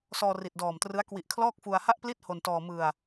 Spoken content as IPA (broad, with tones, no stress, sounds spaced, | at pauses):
s ɔː˧ r i˨˩ t̚ d ɔː˨˩ m t r ɯ˦˥ a̯ k w i˨˩ ʔ kʰ l ɔː˥˩ k̚ f u˧ a̯ h a˥˩ ʔ p l i˥˩ t̚ h o˧ n t ɔː˧ m ɯ˧ a̯